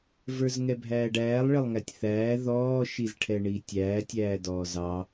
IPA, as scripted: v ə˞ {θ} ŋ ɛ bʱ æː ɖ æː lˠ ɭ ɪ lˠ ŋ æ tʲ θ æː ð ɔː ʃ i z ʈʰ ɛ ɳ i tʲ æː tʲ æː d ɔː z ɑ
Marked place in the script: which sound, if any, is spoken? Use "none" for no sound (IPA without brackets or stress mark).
z